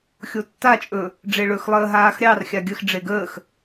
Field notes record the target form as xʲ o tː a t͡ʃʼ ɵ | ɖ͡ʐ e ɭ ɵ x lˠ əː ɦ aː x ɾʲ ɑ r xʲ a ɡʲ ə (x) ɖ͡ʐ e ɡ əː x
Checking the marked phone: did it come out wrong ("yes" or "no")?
no